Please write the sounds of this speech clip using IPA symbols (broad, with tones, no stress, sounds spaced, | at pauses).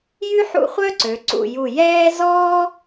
j y˥ ħ ṵ˥˧ χʷ œ˥ ǀ ø˩˧ ǀ ṵ˧˩ j u˧˩ j ɛː˥ z ɔː˥